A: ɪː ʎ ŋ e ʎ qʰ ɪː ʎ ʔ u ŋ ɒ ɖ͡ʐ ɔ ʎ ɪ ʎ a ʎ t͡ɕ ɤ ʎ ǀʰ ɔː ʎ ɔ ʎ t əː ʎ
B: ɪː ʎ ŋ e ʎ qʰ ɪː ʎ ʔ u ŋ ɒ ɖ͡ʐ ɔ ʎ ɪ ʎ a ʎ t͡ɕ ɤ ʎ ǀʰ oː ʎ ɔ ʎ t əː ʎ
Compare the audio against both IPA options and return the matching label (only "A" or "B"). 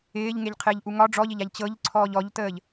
A